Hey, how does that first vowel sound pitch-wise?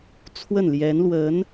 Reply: falling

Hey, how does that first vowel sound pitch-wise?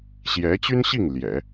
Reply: rising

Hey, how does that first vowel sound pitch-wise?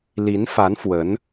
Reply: rising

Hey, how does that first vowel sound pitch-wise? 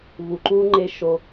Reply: low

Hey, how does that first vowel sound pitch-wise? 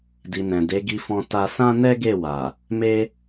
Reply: low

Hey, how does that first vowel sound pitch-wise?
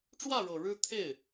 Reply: falling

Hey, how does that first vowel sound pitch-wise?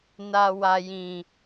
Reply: low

